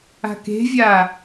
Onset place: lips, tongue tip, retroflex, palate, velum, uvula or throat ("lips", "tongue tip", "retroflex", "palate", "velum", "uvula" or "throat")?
velum